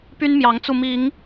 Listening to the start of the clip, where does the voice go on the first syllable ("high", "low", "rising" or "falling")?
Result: high